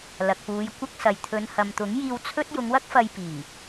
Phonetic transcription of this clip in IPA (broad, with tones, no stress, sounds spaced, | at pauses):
l ɐ˨ k̚ p uː˨˧ j kʷ ɐ˥ k̚ s ɐ˨ j t̪ʰ ɵ˨˧ n h ɐ˨ m t̪ ʊ˨˥ ŋ j iː˧ w t͡sʰ ɵ˥ t̚ j ʊ˨˧ ŋ w ɐ˥ k̚ f ɐ˧ j p iː˨˩